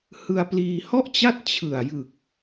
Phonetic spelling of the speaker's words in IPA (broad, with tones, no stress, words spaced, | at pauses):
hɯ˧a̯pliː˧hɔ˥˩ʔt͡ɕa˥˩t̚ t͡ɕʰɯ˨˩a̯jɯ˨˩k̚